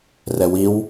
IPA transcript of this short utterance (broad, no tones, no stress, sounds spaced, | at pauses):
r ɛ w i w